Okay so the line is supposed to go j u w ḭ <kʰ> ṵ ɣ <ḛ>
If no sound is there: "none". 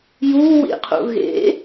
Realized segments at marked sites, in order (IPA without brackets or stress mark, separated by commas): qʰ, ḛ